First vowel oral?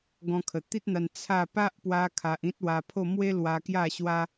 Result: no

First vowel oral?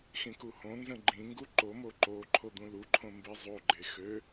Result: no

